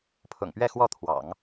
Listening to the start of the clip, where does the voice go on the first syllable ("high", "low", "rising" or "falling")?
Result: low